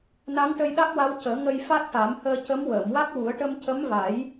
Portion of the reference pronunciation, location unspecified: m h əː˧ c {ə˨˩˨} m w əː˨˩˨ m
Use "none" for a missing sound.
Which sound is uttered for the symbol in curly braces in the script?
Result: ə˧˥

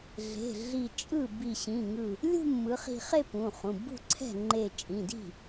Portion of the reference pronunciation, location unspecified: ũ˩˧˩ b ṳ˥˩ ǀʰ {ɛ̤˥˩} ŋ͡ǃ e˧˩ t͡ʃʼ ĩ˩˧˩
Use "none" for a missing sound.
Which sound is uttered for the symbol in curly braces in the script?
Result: ɛ̤˥˩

